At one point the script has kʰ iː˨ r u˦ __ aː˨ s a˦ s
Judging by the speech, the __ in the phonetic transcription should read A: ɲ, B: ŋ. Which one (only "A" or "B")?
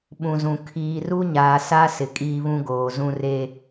A